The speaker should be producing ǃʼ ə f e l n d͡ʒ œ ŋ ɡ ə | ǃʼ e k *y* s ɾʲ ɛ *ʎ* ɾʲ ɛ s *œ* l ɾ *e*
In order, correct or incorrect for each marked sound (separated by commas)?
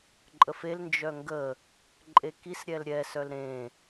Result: incorrect, incorrect, correct, incorrect